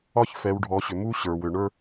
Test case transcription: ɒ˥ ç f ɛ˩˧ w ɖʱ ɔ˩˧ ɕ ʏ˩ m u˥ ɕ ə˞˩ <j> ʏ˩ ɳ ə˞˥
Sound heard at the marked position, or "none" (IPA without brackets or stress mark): w